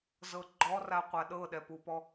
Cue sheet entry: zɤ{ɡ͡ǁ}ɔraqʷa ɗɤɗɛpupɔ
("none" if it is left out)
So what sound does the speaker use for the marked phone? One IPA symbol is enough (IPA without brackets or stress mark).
ɡ͡ǃ